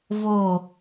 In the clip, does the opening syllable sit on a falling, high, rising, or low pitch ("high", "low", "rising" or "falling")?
falling